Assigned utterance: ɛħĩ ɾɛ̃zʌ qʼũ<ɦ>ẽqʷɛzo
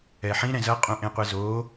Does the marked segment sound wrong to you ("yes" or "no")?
yes